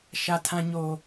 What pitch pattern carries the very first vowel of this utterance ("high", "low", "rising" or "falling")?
low